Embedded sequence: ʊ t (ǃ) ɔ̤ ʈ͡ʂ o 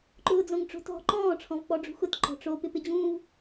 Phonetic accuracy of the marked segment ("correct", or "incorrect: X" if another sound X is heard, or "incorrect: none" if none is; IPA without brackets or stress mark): correct